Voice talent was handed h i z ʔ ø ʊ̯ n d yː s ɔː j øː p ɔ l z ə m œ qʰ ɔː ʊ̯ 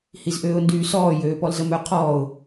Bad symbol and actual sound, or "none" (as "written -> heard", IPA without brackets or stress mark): ø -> øː